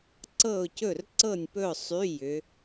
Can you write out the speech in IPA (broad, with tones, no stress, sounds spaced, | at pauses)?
ǀ ɤ˥˨ ʊ̯ c ɵ˥˨ r ǀ ɤ˥˨ nʲ p ɵ˥˨ ʊ̯ sˤ y˧˥˧ j ʏ˨˦